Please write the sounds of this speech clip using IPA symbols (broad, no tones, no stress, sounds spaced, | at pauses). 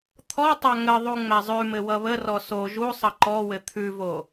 t̪ʰ ɔ tˤ a ŋ ə ðˤ u ŋ͡m æ zˤ ʉ m ɘ w ʌ β ə r ɔ s o ʒ u sˤ ʌ ǃ ɔ w ɘ t̪ʰ ʉ v o